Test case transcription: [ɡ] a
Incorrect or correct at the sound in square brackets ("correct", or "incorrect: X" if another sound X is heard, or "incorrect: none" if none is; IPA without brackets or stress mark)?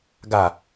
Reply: correct